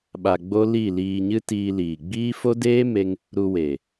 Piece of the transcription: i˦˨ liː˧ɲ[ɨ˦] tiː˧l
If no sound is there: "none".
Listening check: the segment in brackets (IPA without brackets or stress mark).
ɨ˦